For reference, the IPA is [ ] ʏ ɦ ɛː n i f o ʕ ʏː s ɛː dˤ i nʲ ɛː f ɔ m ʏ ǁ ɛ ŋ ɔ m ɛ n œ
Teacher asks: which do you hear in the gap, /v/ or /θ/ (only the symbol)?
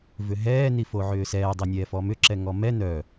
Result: v